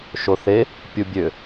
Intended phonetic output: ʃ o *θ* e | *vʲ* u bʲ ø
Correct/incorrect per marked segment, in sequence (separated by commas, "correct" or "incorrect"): correct, incorrect